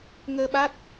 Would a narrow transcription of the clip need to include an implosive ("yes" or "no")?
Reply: yes